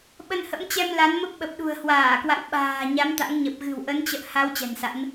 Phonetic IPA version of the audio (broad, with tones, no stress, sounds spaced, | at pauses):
ɓ ə˧ n h ə̰˧˥ m t͡ɕ ɛ˧ m l a˨˦ n m ə˦˥ p̚ ɓ ə˨˩ p̚ ɗ ṳ˨˩ ə̯ h w aː˧˩ k w a̰˧˨ w ɓ a̤ː˨˩ ɲ a˨˦ m t̪ a̰˧˥ ŋ ɲ ə˨˩ p̚ ɣ ɨ̤˨˩ w ʔ ə˨˦ n t͡ɕ ə̰ː˧˨ h a˨˦ w t͡ɕ ɛ̤˨˩ n s a̰˧˥ n